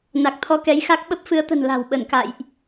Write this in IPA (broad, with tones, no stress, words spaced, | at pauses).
na˨˩k̚t̪ʰɔ˧kɛ˨˦jxa˦˥k̚ ɓə˦˥p̚fɨ˨˦ə̯t̪ə̤˨˩n la̤˨˩wɓə˧˩nka̰˧˨jʔ